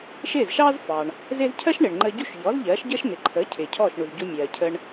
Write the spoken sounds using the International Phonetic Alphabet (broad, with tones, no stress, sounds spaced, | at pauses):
ʃ ɪː˥˩ z ʃ ɑː˥ z f ɑː˩ ɳ | z ɪː˥ z cʰ ɜ˥ ʃ ɳ ɪː˩ ɳ ŋ͡ǃ əː˧ ɟ u˥˩ ʃ ʎ ɔː˩˥ z ʎ ɜː˩˥ ʃ ɟ əː˥ ʃ n̪ ɪ˩ ǃʰ əː˩˥ cʰ ɪː˩ cʰ ɔː˥˩ ʃ ɳ u˩ z ɟ u˧ mʲ ɜː˩ cʰ ə˧ ɳ